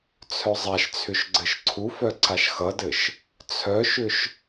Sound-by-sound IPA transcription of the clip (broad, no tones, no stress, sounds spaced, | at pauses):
t͡sʰ œ zˤ a ʃ t͡sʰ ʏ ʃ ɡ͡ǀ ɘ ʃ ǀʰ u f œ ǀ a ʃ x ʌ d ɘ ʃ | t͡sʰ œ ʃ ʏ ʃ